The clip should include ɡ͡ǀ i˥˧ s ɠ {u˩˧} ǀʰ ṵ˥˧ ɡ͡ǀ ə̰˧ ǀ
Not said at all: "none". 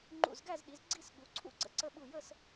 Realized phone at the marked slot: u˩˧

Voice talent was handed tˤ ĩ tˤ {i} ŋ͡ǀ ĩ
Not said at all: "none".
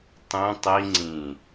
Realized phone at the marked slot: i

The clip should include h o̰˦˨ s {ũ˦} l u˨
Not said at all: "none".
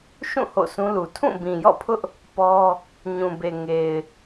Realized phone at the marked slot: ũ˦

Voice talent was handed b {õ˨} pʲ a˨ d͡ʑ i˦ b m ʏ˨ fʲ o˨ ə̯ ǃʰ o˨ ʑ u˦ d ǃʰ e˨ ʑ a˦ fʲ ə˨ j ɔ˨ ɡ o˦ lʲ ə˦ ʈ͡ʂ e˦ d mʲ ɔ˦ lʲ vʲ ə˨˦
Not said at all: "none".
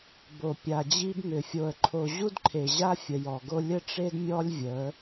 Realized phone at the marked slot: o˨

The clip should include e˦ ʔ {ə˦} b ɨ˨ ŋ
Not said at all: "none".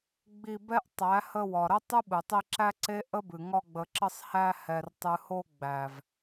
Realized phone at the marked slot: ə˦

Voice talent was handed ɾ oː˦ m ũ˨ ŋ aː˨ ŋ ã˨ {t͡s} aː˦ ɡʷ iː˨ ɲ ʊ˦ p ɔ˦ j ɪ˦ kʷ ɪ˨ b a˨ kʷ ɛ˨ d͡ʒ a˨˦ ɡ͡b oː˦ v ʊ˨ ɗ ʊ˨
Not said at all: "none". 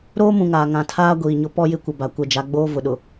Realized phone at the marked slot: tʰ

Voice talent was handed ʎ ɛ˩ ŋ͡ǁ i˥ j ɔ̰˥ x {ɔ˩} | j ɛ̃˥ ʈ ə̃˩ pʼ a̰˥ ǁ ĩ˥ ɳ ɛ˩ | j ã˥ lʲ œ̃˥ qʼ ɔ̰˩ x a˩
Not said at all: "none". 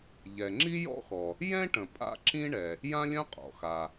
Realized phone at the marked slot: ɔ˩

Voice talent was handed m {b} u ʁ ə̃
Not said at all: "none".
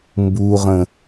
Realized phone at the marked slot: b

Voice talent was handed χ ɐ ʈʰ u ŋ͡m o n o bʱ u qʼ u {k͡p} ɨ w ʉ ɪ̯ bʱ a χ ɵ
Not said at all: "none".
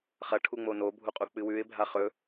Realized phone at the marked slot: k͡p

